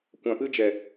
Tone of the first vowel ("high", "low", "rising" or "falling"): low